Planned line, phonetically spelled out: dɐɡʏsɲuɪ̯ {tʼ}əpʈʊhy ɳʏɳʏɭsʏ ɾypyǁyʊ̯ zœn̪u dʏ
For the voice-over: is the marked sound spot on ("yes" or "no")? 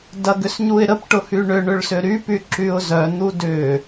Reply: no